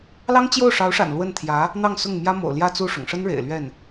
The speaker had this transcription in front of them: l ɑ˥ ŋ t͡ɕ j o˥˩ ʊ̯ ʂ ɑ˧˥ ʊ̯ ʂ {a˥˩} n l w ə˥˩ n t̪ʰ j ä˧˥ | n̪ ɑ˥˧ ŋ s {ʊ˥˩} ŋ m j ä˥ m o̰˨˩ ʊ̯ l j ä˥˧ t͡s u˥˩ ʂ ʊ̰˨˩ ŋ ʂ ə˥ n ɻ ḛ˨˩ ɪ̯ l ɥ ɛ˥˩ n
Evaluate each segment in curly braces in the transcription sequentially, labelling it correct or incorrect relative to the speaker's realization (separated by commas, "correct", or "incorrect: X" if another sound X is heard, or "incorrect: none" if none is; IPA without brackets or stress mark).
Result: incorrect: a̰˨˩, correct